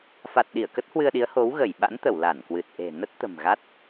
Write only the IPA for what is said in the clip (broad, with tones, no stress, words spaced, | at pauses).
fa˨˩t̚ ɗi˧˩ə̯kə˦˥t̚hwɨ˧ə̯ɗi˨˦ə̯ ho˨˦wɣə˧˩jɓa̰˧˥nt̪ə˧˩w la˧˩nkwɨ˨˩t̚ʔe̤˨˩ nə˦˥t̚t̪ə̤˨˩mɣa˦˥t̚